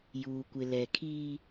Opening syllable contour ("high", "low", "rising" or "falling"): low